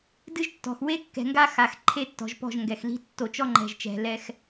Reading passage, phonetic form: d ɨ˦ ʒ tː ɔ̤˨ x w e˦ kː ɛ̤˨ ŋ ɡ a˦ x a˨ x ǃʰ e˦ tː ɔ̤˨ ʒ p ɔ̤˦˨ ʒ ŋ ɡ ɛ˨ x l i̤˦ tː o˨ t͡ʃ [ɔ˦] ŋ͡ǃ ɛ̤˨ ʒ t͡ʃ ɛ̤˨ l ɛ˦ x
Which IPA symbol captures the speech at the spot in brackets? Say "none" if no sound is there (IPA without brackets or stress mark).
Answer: ɔ˦